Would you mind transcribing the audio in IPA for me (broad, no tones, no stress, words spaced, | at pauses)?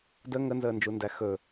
də ŋənzəːnd͡ʒundæ xɵ